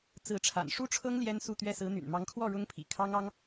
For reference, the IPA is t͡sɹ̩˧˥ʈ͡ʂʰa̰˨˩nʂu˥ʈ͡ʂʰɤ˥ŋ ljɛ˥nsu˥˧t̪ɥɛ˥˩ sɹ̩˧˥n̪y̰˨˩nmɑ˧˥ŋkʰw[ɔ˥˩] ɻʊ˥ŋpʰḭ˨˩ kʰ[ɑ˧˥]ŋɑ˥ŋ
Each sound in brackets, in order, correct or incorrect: correct, incorrect: ɑ˥

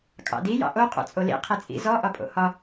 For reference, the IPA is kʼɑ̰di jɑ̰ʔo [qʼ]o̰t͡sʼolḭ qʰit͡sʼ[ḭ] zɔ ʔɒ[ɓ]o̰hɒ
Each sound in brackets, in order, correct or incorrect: correct, correct, incorrect: pʼ

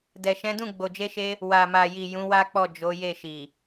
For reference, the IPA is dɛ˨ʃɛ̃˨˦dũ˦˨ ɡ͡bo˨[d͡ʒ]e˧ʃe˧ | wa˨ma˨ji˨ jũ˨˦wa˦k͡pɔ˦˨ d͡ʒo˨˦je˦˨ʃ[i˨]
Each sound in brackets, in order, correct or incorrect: correct, correct

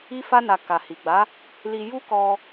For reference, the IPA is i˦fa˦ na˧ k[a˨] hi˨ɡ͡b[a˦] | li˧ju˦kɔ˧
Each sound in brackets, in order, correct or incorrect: correct, incorrect: a˨˦

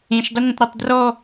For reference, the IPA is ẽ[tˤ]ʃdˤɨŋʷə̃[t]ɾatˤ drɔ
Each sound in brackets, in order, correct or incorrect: incorrect: none, correct

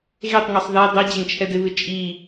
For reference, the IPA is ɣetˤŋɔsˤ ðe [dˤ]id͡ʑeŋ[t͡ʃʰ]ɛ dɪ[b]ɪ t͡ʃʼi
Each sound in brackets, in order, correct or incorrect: correct, correct, incorrect: β

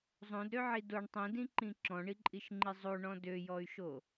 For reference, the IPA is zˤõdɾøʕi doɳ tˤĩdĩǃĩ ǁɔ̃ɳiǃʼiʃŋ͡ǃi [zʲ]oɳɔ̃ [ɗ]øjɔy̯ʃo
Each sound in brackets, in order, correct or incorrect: incorrect: zˤ, incorrect: d

